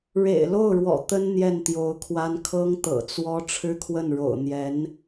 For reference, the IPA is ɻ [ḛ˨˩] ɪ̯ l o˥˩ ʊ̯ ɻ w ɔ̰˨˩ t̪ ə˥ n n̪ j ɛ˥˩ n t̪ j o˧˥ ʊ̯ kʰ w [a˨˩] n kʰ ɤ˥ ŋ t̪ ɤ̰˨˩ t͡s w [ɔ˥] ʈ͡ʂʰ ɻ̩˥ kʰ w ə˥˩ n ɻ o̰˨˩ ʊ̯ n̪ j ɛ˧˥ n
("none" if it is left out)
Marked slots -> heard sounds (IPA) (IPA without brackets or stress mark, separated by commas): ḛ˨˩, a˥, ɔ˥